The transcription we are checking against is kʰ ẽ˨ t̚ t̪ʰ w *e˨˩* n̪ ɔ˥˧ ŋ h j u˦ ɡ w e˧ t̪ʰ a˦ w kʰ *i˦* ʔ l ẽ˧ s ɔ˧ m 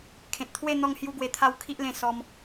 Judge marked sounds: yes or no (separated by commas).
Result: no, yes